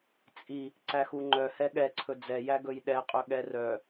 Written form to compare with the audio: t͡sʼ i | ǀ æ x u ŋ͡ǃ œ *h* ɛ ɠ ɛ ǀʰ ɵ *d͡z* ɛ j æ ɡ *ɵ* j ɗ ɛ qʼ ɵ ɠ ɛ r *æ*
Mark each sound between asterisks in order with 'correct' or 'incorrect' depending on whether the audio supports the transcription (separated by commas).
correct, correct, correct, incorrect